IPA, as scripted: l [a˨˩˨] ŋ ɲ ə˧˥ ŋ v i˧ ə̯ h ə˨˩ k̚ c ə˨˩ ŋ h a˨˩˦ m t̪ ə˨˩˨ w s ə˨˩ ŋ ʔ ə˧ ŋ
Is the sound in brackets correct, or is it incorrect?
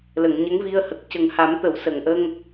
incorrect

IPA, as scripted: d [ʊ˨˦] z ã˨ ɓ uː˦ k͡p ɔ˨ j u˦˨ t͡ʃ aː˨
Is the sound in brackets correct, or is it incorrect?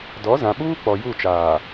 incorrect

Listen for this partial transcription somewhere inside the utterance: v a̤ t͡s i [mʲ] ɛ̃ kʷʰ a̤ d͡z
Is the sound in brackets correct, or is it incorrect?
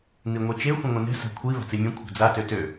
correct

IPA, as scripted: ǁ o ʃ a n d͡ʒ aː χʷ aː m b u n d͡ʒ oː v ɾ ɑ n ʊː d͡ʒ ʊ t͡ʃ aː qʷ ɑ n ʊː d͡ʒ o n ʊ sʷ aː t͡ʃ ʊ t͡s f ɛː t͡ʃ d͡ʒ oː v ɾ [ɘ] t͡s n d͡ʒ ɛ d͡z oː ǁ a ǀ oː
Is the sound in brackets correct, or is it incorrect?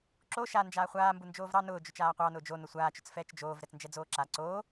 incorrect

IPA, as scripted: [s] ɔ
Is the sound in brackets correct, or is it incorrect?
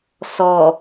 correct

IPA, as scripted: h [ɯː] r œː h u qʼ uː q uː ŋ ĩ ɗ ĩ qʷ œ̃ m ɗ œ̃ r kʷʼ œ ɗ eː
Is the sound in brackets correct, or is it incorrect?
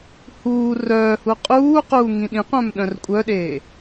incorrect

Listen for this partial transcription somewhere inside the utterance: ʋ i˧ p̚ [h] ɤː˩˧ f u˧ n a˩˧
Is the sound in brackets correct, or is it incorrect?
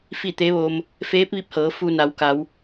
correct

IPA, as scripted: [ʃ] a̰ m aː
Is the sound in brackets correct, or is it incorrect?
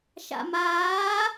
correct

